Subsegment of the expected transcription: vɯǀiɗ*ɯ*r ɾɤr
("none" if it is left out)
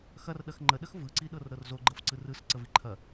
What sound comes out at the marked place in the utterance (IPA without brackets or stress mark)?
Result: ɤ